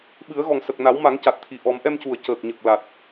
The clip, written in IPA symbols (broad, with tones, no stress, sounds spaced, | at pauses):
ɓ ɨ˨˩˦ ə̯ ɣ ɔ˨˩ ŋ s ə˨˩ k̚ n a˨˩˦ w m a˨˩˦ ŋ c a˨˩ t̚ t̪ʰ i˨˩ ʔ ɔ˨˩˦ m ʔ ɛ˧ m c u˨˩ ə̯ c əː˨˩ k̚ ɲ ə˨˩ k̚ l a˨˩ t̚